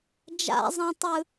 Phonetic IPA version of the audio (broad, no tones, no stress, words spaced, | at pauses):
d͡ʒa̰zˤãtˤɯ